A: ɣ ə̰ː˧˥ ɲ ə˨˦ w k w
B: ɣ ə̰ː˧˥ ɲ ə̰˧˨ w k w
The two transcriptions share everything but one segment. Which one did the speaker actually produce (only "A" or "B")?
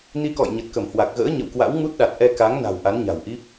B